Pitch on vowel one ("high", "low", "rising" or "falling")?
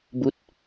rising